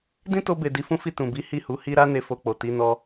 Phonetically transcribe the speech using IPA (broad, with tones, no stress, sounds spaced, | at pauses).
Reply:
d ĩ˦ t o˧ b e˨ d i˧ f ũ˦ f i˦˨ t ũ˨ b i˨˦ h i˦˨ h u˨˦ h i˦ ɾ a˧ n e˧ f o˧ k͡p o˨ t i˨˦ n ɔ˧